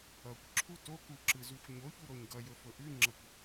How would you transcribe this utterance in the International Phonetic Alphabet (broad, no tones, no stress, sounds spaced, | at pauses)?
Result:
ʌ kʷ ǁʰ u t o k u ǁ ɯ z u xʷ ɲ o ç u ɾ o ɲ ɡ ʌ j ɵ f ɵ ʔ ʉ ŋ͡ǁ ʌ kʷ